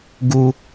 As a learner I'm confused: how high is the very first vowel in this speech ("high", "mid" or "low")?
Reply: high